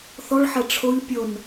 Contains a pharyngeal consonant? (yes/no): yes